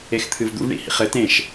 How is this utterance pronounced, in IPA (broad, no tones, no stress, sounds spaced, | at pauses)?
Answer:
e x t̪ʰ ɨ v d̪ ṵ v ɳ ḭ h ḭ χ ɘ t ẽ ʃ